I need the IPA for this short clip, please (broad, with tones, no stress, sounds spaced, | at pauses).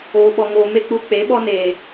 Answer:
oː˧ ɓ ɔ˧ ŋ oː˧ m e˦ k͡p u˧ k͡p e˨˦ ɓ ɔ˧ n eː˨